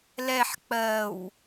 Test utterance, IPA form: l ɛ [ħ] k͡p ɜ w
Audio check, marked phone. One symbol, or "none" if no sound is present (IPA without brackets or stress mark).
ħ